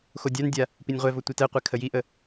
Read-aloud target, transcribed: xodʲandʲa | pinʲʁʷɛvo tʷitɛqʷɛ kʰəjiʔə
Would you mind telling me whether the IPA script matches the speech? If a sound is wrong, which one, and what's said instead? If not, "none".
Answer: none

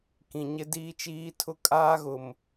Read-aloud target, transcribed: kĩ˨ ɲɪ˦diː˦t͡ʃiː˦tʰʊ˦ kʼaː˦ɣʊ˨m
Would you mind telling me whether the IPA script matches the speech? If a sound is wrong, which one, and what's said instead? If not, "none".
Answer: none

